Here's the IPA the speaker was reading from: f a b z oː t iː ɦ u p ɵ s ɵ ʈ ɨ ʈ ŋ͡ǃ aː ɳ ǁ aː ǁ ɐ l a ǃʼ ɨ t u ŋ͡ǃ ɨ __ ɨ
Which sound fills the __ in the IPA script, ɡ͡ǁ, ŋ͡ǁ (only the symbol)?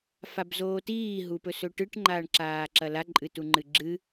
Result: ɡ͡ǁ